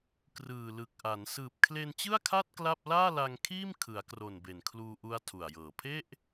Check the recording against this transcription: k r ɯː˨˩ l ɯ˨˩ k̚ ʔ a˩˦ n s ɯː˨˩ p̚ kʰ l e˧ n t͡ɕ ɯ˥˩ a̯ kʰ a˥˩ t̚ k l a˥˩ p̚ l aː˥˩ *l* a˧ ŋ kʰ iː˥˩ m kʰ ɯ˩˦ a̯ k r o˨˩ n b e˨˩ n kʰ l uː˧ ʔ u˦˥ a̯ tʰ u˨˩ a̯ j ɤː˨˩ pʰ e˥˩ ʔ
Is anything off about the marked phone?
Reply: no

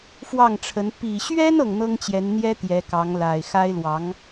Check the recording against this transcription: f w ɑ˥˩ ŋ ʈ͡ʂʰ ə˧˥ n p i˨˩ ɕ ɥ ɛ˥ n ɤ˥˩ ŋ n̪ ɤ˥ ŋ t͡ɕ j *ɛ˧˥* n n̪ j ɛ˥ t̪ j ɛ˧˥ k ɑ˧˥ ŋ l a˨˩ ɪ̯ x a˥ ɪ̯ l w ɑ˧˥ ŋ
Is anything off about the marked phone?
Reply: no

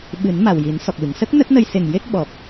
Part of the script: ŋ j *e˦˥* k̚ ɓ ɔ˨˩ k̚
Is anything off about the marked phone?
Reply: no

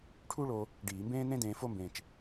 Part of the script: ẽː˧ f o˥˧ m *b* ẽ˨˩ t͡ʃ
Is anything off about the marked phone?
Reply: no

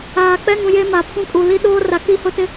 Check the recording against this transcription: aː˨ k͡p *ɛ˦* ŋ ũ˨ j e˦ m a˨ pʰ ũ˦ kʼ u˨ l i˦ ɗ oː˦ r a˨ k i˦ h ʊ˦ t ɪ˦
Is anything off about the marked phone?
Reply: no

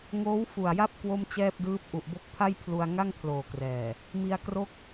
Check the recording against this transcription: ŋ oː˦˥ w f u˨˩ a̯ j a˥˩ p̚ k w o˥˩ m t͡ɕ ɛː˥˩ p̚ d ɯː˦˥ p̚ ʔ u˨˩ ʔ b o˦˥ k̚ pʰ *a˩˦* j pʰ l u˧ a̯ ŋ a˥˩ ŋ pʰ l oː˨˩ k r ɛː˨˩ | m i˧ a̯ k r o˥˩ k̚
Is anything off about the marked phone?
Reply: yes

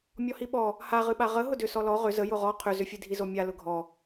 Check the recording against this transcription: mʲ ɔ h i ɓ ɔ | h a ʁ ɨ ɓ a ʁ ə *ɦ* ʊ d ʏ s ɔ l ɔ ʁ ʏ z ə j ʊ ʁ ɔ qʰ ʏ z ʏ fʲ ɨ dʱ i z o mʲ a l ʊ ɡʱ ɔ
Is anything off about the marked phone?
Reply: no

